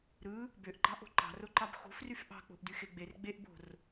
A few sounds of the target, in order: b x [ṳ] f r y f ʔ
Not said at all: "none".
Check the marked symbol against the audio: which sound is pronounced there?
o̤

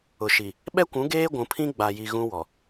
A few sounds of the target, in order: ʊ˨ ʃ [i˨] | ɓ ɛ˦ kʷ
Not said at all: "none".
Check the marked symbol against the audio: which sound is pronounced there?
i˨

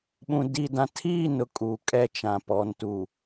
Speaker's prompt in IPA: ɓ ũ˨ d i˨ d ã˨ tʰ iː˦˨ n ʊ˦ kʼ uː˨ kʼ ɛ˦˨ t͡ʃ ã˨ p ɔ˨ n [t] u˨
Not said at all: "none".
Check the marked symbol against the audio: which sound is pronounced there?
t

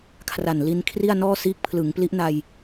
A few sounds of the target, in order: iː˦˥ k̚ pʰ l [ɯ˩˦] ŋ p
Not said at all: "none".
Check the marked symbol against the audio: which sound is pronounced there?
ɯ˩˦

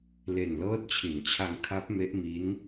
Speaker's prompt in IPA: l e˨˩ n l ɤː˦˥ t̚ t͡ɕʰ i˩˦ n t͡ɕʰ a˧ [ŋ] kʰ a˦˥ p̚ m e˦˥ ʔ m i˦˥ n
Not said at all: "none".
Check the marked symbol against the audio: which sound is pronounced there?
ŋ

